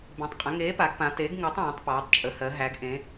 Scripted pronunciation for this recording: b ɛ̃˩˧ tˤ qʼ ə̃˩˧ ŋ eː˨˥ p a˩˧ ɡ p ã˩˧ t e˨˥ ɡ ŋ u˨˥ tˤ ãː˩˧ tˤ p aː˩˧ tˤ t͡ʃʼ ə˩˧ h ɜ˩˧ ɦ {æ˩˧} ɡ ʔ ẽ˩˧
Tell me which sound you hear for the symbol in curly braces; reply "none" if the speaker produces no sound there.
æ˩˧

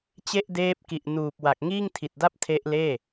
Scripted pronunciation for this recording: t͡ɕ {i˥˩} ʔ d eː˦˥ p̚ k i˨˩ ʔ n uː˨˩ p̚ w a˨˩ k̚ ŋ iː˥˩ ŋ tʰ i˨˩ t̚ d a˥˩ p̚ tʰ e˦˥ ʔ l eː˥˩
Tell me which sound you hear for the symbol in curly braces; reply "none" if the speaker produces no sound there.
e˥˩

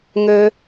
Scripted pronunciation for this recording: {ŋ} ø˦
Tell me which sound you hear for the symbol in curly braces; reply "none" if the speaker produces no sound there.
ŋ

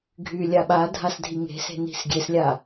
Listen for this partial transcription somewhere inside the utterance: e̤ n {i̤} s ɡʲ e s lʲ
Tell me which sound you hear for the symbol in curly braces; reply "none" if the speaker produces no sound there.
i̤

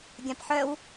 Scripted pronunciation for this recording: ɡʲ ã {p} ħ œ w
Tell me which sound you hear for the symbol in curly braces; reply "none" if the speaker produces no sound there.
p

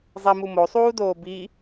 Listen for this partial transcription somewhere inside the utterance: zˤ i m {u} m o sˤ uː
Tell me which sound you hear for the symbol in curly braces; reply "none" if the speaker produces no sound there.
u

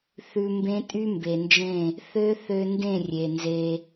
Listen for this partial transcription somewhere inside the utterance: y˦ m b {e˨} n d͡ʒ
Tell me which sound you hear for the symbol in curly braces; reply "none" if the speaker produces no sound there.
e˨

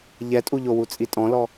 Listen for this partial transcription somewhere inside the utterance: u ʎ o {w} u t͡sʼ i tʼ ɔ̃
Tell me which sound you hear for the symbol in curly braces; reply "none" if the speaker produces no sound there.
w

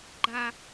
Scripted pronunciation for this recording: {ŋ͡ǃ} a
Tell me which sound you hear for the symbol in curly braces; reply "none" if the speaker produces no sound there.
ɡ͡ǃ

